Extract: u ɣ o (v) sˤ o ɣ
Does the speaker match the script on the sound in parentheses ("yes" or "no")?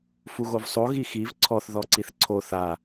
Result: yes